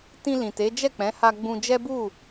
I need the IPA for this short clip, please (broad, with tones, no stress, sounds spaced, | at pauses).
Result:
t ĩ˧ l ĩ˨ t e˨˦ d͡ʒ ɛ˦˨ k͡p ɛ̃˨˦ h a˧ ɡ͡b ũ˧ d͡ʒ ɛ˦ b u˦˨